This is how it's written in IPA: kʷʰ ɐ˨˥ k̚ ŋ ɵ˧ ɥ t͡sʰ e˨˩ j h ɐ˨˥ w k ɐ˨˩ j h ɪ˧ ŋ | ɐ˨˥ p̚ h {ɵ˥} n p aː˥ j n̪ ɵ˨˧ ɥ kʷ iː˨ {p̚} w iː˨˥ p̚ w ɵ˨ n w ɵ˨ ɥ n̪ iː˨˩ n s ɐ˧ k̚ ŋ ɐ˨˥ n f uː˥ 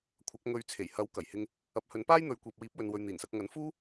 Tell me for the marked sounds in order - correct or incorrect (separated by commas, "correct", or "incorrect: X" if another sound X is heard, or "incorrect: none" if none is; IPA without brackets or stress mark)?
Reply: incorrect: ɵ˨˧, correct